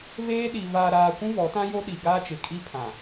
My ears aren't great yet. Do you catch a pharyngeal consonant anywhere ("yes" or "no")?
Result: no